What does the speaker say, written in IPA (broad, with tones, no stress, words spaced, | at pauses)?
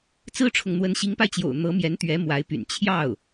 t͡sɹ̩˥ʈ͡ʂʰʊ˨ŋ n̪wə˧˥nɕi˧˥ŋpa˧ɪ̯t͡ɕjo̰˨˩ʊ̯ n̪ɤ˧˥mjɛ˧˥nt̪ɥɛ˧˥ mwa˧˥ɪ̯py̰˨˩n t͡ɕʰjɑ˥˩ʊ̯